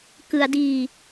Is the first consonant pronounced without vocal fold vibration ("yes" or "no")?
yes